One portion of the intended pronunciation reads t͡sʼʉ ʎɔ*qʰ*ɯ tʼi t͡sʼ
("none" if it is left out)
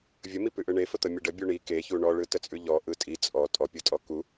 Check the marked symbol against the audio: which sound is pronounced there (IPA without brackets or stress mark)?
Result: ʔ